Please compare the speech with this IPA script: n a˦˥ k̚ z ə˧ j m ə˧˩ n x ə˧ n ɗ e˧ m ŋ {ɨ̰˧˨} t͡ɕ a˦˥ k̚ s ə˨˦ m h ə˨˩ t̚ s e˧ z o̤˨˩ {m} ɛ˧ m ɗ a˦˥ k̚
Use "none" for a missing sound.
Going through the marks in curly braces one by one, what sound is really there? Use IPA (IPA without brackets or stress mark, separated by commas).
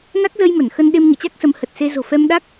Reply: ɨ̰˧˨, f